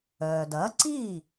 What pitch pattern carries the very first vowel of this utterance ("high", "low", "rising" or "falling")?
low